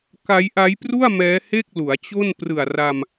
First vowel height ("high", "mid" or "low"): low